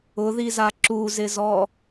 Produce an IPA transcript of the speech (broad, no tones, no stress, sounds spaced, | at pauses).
ʊ ð i z a ǁ u z ɪ z ɔ